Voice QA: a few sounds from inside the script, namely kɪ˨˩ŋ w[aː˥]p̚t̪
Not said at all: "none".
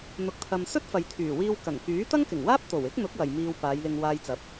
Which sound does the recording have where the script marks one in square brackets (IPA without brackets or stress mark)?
aː˥